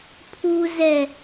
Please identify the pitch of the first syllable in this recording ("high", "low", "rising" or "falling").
low